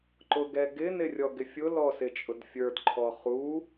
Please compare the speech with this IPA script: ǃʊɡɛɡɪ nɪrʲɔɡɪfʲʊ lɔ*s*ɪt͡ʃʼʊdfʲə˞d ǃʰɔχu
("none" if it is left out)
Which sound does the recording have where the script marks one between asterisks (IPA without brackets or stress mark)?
s